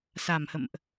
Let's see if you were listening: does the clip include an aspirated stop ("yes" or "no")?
no